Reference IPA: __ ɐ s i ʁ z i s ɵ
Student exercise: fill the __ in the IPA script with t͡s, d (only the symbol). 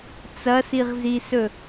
t͡s